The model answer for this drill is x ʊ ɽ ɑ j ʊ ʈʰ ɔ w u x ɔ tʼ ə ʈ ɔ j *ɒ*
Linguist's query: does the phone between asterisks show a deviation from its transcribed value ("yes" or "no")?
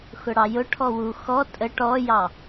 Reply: yes